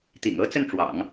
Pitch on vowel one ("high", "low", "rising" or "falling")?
low